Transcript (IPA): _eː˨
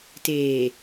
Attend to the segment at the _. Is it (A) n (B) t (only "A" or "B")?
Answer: B